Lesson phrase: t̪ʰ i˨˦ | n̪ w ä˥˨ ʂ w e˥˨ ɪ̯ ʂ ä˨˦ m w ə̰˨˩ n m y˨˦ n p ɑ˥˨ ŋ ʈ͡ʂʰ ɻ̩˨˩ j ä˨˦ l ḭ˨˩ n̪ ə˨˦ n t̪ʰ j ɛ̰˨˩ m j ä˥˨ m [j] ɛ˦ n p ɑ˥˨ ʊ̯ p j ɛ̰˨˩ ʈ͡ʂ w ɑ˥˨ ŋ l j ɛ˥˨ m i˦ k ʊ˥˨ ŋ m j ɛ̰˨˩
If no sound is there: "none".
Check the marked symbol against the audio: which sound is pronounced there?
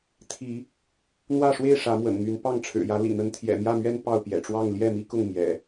ɥ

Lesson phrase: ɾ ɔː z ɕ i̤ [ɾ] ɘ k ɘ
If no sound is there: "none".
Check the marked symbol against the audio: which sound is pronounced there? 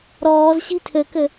tʰ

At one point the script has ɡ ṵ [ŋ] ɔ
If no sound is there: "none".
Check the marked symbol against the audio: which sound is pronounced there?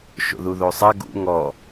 ŋ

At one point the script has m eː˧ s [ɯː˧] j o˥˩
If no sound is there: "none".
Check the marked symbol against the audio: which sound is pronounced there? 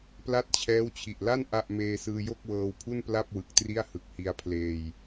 ɯː˧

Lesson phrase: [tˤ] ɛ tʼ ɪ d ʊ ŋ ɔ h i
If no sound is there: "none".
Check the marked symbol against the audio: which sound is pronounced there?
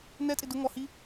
n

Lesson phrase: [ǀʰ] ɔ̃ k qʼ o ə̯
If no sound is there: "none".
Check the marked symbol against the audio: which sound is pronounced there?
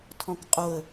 tʰ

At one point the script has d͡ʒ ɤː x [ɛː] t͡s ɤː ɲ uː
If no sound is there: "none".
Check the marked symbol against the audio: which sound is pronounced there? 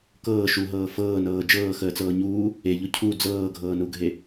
əː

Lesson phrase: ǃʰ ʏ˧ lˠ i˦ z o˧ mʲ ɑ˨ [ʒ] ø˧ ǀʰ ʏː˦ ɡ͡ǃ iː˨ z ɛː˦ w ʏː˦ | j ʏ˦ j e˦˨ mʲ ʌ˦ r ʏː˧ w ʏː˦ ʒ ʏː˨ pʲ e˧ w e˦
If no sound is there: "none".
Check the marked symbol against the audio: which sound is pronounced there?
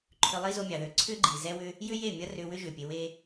ð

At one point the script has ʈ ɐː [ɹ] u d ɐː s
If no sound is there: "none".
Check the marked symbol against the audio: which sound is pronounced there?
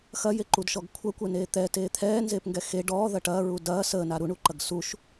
ɹ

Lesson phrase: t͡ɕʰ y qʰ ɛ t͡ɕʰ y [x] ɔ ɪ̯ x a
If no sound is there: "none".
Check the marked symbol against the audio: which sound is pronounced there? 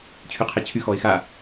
x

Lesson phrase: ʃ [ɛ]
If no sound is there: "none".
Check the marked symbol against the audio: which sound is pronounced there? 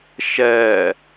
ɛ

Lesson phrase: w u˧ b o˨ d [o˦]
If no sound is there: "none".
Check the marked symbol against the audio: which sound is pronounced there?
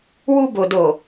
o˨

